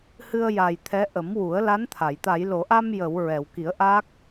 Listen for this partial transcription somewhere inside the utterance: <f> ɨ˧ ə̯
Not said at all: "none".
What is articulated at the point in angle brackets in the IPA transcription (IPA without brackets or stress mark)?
h